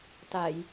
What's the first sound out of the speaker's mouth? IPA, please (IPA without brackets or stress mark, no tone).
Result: t̪